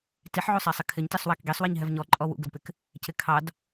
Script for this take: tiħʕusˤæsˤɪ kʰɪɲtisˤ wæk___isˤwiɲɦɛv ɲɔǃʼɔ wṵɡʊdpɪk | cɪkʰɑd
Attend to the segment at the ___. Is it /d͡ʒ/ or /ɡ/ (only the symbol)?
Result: ɡ